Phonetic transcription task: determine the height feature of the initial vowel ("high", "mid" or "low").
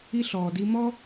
high